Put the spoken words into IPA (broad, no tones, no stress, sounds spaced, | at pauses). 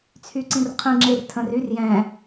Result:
t͡sʰ y ǀ ĩ r qʰ ĩ ŋ͡ǁ e r tʰ ə̃ r y r j ɛ̃